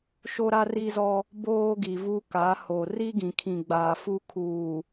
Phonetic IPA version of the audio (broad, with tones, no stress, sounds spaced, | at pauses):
ʃ o˦ ɾ a˦ r i˦ z ɔ˦ | b oː˦ ɡ i˨ v u˦ k a˨˦ h o˨ r i˦ ɡ ĩ˨ kʰ ĩ˨ ɡ͡b aː˨ f u˦ kʰ uː˨